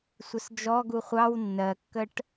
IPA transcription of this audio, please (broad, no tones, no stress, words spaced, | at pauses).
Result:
sʷəsd͡ʒɔ ɡuχʷɑw nːɜkːəʈ